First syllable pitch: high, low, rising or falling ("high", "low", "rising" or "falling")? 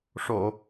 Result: low